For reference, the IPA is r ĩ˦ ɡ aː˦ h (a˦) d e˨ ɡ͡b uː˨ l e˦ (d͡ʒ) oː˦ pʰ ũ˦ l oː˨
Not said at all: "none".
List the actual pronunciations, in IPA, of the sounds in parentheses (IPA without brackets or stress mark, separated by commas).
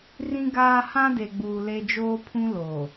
ã˦, d͡ʒ